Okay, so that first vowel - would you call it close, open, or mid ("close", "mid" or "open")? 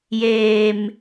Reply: mid